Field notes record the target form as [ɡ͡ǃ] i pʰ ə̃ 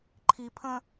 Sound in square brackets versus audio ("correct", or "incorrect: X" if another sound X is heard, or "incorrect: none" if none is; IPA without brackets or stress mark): incorrect: ǃʰ